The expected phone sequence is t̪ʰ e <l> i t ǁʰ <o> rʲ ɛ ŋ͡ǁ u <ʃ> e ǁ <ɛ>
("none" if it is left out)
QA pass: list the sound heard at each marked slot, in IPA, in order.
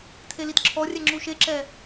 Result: l, ɔ, ʃ, ɛ

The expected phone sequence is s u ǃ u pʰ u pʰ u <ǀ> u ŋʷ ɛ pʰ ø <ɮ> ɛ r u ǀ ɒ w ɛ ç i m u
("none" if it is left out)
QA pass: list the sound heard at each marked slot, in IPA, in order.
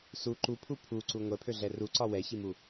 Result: ǀ, ɮ

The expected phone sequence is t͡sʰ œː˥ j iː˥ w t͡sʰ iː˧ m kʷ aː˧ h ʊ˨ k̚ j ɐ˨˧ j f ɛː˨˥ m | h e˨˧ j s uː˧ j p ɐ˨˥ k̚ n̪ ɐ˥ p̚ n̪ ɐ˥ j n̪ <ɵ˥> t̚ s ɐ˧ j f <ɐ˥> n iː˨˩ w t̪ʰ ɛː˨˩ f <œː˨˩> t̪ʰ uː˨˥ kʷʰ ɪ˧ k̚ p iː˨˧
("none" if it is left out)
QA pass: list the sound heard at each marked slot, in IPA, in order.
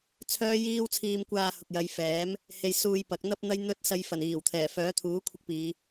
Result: ɵ˥, ɐ˨˩, œː˨˥

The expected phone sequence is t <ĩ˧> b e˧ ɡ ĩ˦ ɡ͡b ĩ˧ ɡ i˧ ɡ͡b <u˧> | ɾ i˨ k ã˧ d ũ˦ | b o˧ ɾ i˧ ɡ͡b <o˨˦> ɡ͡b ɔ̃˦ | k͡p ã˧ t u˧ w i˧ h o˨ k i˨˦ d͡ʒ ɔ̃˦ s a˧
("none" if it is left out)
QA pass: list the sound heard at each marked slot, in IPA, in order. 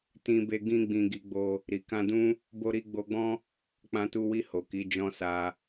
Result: ĩ˧, o˧, o˧

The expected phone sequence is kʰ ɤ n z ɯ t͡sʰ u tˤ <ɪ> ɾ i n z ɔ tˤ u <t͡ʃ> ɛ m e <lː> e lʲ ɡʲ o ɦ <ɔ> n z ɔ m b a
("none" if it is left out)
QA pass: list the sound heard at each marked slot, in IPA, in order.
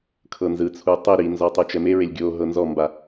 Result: i, t͡ʃ, ɹ, ɤ

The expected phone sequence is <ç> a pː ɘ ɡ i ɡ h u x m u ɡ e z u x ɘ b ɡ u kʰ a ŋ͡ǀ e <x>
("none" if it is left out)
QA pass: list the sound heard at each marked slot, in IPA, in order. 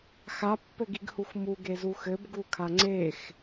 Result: x, x

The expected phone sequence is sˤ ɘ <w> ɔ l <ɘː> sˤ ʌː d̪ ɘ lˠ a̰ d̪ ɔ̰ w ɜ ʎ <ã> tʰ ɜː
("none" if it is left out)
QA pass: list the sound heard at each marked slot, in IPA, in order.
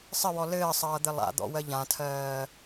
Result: w, ɘː, ã

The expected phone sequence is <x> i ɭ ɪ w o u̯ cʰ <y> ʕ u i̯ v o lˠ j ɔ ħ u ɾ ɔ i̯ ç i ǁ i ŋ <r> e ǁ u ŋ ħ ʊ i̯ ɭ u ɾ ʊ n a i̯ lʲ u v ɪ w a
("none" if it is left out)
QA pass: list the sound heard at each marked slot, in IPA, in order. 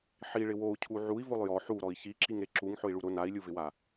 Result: ħ, u, ɾ

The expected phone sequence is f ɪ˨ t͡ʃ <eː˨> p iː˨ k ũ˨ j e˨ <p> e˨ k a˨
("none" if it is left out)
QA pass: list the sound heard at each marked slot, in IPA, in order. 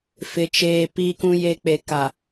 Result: eː˨, k͡p

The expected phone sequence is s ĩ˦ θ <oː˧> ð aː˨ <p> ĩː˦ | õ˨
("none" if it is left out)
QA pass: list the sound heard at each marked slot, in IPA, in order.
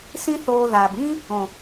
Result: oː˧, b

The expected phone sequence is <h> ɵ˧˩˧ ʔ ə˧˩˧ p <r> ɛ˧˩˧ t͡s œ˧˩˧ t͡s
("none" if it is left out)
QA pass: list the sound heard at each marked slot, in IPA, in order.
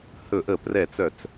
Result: h, r

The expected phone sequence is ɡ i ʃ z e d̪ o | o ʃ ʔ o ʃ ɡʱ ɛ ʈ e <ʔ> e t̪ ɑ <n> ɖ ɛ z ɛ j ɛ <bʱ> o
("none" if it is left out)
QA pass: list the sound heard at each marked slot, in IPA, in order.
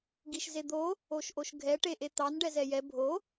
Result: ʔ, n, bʱ

